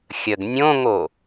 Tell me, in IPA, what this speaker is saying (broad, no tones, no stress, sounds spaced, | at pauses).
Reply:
xʲ ə ɡ nʲ õ ŋ o